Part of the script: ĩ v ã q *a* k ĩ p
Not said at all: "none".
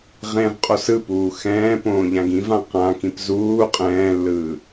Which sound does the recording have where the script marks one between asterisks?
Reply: ã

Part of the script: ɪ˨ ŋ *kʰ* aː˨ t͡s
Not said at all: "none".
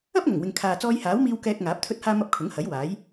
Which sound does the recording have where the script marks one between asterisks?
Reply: kʰ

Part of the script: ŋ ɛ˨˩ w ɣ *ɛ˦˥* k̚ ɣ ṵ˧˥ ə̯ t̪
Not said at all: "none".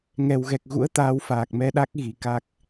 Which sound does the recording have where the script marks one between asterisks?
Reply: ɛ˨˩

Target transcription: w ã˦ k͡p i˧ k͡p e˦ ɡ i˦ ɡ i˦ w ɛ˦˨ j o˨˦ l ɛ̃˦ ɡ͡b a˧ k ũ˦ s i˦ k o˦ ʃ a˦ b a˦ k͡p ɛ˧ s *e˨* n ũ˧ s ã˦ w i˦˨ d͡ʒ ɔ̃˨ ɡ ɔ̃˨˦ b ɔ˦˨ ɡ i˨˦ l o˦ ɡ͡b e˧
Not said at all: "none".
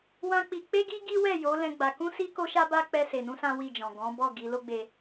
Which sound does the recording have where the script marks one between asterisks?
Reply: e˨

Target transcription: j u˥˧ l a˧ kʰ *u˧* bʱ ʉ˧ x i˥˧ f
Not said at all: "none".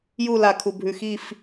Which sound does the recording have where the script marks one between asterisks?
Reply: u˧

